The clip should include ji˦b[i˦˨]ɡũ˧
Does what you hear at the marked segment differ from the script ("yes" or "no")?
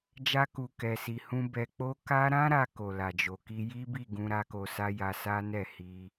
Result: no